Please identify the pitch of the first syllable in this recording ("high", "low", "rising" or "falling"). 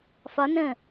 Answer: rising